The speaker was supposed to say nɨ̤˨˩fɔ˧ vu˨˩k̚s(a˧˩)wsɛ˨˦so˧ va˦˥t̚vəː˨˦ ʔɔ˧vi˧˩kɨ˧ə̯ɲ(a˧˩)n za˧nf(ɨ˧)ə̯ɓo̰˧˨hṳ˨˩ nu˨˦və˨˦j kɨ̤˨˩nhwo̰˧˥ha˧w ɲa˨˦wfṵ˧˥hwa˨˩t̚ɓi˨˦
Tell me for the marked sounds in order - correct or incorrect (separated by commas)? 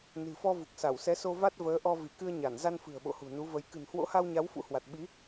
correct, correct, incorrect